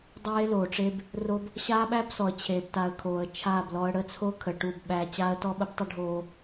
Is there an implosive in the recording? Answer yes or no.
yes